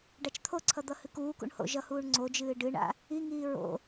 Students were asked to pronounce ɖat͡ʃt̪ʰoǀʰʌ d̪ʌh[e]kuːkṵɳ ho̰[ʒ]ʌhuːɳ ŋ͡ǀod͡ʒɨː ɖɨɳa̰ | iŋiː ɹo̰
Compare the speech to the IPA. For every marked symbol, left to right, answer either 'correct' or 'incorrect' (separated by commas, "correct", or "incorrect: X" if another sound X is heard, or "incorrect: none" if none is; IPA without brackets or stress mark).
incorrect: ɨ, correct